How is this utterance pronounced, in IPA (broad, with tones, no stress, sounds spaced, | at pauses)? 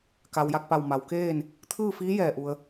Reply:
k a˩ w j a˧˩ k̚ p a˧˩ w m a˩ w k eː˥˨ n | t̪ʰ ɯː˥˨ f iː˧˥ j ɛː˧˩ ʔ u˩ ə̯